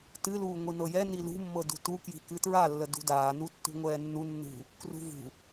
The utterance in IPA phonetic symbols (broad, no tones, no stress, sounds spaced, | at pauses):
t ɨ l uː ŋʷ i n ɤ j ɛ n i l ṳ mː ɤ d ṳ t u k j i̤ k ɨ t ɹ a lː ə d ṳ d aː n u tː ṳ ŋʷ ɛː nː u nː ṳ | k r ṳ v ṳ